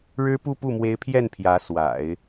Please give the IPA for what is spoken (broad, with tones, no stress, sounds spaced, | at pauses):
ɻ ɻ̩˥ p u˥˧ p u˥˩ m w e˧˥ ɪ̯ pʰ j ɛ˥˩ n pʰ j ä˧˥ s w a̰˨˩˦ ɪ̯